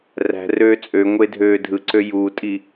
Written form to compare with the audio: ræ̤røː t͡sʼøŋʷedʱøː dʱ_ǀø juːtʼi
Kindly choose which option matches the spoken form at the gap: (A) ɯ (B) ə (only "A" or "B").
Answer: A